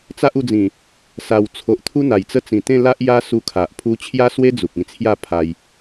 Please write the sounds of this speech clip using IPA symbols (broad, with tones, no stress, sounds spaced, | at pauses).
t͡s a˦ ʔ u˧ d͡z ĩ˨˩ | s a˨˩ w t͡sʰ o˨ ʔ t̪ʰ u˦ n̪ a˨˩ j t͡s ə˦ t͡s ĩ˨˩ t̪ ẽ˥˧ l a˦ ʔ j a˦ s u˧ kʰ a˨ ʔ pʰ u˧ t͡ɕʰ j a˦ s w e˦ d͡z u˨ k̚ ĩ˧ t͡sʰ j a˥˧ pʰ a˧ j